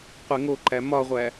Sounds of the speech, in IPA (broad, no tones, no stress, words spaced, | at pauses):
qʷeŋoǃæ mɒʁʷæ